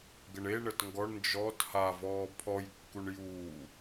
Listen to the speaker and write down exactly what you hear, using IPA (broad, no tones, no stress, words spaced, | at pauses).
ɡəɳe ɳətŋɡɔɳ nd͡ʒɔt havɔː pʰɔjkːuɳ juː